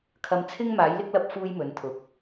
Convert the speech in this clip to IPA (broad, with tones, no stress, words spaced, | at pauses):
kʰɐ˧mt͡sʰɪ˥ŋmaː˨˥j lɪ˥k̚lɐ˥p̚ fuː˥jmɵ˨˥nt̪ʰʊ˨˥k̚